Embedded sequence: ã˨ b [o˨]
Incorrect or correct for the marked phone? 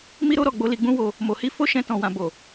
correct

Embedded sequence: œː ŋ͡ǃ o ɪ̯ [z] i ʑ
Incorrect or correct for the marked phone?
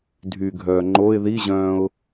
incorrect: ð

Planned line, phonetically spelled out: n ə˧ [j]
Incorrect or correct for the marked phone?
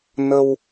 incorrect: w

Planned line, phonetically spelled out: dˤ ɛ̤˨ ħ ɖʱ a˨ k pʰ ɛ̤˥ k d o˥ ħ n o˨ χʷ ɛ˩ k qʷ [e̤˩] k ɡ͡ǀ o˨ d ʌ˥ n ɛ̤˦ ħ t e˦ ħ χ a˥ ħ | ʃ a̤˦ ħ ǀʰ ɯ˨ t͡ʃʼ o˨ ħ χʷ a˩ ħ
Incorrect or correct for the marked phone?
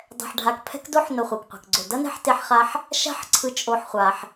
correct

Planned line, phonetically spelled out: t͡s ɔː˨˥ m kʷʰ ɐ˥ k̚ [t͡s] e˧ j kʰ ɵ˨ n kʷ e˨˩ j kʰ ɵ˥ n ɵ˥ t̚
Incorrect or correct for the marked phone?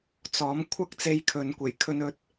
correct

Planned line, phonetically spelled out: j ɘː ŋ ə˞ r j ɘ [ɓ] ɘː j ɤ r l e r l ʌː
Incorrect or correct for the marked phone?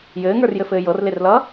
incorrect: f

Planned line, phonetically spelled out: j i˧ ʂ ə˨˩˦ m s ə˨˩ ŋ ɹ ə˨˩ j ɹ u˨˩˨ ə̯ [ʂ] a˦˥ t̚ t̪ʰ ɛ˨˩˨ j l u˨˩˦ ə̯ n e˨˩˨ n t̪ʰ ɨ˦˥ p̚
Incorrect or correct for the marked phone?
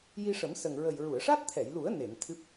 correct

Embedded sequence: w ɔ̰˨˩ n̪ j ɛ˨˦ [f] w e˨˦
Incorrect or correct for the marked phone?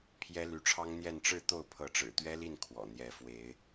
correct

